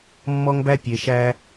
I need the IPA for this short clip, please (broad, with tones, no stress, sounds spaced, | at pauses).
mː ɔ˦ ŋ b æ˦ pʲ e˨ ʃ æ˧